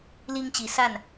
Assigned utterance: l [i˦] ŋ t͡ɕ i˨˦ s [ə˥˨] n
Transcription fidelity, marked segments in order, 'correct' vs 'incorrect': correct, incorrect

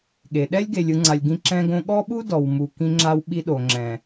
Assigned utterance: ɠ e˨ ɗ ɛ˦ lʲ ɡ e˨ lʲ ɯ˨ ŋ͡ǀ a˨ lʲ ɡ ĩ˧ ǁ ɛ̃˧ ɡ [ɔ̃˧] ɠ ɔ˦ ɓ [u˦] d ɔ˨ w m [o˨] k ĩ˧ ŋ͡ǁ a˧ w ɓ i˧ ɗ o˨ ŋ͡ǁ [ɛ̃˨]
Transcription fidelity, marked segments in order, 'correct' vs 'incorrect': incorrect, correct, incorrect, correct

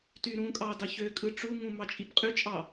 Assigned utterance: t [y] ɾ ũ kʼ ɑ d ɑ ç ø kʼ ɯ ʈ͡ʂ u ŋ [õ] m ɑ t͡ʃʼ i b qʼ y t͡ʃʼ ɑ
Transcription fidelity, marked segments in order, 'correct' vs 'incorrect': correct, incorrect

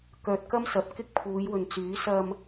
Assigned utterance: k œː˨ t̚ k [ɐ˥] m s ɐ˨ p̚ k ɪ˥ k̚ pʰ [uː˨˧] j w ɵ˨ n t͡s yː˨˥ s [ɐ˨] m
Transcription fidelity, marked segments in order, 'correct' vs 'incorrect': correct, correct, correct

